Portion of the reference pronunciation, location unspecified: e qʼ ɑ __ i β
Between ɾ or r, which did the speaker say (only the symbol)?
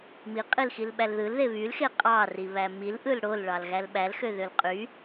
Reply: r